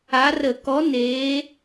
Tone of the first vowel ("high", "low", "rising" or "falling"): rising